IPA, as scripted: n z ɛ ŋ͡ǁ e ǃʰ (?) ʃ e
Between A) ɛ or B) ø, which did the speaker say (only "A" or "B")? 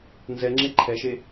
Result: A